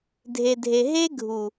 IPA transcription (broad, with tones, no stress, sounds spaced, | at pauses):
dʱ e˨ dʱ e˨ ɦ e˦ ɡʱ u˨